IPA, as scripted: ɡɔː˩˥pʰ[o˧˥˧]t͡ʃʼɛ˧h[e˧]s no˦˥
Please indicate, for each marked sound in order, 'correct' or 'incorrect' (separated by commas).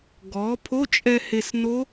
correct, correct